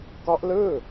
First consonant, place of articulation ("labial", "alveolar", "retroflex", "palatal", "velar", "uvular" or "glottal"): velar